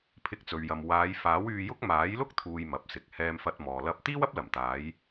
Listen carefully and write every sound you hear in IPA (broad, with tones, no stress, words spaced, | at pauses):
pʰɪ˧k̚t͡sɵ˨ɥjɐ˨m waː˨˧jfaː˨˥wyː˧jʊ˥k̚ maː˨˥jlʊ˥k̚ t̪ʰuː˧jmɐ˨p̚sɪ˨k̚ hɛː˧mfɐ˧t̚mɔː˨ lɐ˥p̚ t̪iː˥wɐ˥p̚lɐ˨˩mt̪aː˨˧j